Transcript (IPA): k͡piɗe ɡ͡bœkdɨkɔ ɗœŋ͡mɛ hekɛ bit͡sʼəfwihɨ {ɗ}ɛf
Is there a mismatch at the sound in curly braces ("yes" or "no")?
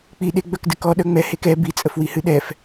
no